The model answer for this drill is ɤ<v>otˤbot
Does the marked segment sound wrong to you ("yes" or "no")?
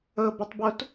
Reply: yes